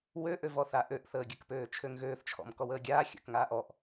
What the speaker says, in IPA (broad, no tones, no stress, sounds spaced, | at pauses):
w ø ʔ ø v ɔ θ a ʔ ø ʔ θ əː ɡʲ ə k p øː t͡ʃʰ ø ŋ ɣ øː θ t͡ʃʰ ɔ̰ m k ɔ w əː ɡʲ aː xʲ ə̰ k ŋ aː ʔ ɔ ʔ